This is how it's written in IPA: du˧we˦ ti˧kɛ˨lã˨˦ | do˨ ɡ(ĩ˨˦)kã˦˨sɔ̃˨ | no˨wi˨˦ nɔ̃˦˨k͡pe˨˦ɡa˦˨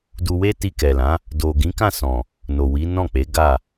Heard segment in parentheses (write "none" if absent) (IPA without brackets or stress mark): ĩ˨˦